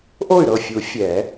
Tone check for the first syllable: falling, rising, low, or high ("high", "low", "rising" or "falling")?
falling